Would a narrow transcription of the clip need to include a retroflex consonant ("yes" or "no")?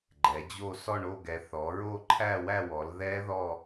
yes